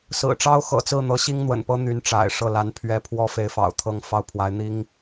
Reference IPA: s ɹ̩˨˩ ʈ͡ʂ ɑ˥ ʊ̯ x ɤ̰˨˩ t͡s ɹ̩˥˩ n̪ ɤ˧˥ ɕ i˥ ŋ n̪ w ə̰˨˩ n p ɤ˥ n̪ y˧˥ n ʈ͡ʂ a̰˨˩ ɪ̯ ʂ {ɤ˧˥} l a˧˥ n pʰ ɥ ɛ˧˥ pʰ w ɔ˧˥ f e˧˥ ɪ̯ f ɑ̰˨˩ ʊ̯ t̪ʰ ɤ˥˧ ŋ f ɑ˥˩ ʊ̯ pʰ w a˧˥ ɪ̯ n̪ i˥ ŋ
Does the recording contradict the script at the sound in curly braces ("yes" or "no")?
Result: yes